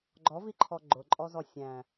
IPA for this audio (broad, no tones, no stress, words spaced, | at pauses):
ɡ͡ǃɔviǃʰɔ ɡ͡ǃʊǃʼɔzɔ sʲæ̃